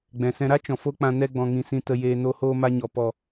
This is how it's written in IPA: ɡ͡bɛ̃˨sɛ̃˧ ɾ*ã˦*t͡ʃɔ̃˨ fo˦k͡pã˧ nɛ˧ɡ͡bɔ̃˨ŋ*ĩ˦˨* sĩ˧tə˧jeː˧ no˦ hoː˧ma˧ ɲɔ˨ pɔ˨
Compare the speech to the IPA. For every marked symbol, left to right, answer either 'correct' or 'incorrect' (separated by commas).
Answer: incorrect, incorrect